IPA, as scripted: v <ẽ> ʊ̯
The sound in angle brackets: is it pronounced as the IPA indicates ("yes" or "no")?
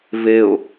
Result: no